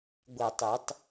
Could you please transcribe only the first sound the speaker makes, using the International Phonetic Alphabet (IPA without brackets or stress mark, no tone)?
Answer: ɡʷ